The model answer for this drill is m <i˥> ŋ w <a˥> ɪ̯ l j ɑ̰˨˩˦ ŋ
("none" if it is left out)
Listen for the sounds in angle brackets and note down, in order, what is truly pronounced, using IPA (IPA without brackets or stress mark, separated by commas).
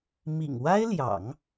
ḭ˨˩, a˥